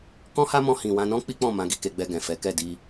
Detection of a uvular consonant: absent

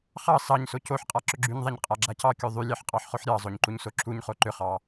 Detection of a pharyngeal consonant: present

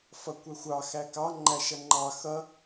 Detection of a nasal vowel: absent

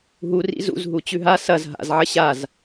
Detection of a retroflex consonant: absent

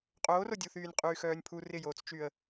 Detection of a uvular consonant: present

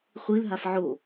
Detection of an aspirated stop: absent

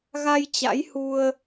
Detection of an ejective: absent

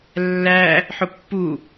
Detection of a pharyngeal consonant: present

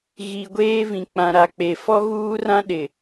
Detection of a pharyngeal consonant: absent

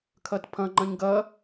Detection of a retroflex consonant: absent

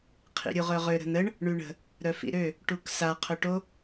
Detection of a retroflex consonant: present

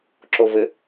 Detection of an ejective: absent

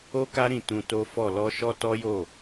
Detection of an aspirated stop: absent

